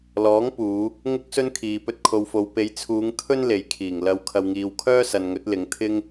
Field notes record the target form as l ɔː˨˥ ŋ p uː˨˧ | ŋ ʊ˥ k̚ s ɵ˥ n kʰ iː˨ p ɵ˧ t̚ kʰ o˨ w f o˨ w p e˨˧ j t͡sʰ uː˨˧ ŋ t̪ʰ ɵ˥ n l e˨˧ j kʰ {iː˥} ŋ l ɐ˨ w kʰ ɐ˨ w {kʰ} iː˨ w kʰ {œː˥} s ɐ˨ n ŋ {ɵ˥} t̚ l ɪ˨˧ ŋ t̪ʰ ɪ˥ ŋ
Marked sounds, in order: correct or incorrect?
incorrect, incorrect, correct, incorrect

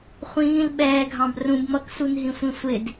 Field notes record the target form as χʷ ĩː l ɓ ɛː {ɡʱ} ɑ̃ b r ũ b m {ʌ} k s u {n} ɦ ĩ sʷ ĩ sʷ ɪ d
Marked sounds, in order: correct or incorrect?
correct, correct, correct

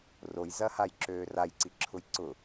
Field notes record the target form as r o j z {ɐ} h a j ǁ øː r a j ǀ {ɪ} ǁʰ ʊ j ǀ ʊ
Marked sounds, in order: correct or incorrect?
correct, incorrect

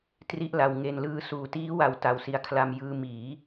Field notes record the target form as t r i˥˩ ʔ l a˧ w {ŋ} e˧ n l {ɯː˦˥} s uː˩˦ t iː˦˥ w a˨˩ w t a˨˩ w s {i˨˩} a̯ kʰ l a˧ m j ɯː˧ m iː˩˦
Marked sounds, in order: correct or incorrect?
correct, correct, correct

